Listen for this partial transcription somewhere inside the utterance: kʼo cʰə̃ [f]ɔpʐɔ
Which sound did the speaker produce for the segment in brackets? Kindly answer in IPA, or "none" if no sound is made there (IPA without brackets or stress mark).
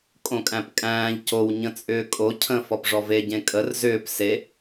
f